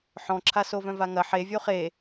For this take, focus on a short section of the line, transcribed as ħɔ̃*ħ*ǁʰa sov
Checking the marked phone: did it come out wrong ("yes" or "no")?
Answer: yes